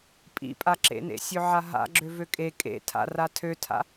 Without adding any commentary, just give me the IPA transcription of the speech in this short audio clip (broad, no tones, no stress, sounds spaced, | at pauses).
pʼ ḭ pʼ a ǁ ḛ n ḛ sʲ ø ʕ a ɦ a̰ ɡ͡ǁ ø v ø kʼ e kʼ ḛ tʰ a̰ r a tʰ ø tʰ a̰